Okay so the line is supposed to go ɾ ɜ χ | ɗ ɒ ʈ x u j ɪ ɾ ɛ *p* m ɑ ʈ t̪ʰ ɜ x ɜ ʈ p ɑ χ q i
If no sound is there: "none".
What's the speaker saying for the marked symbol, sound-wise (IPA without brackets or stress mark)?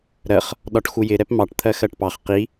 p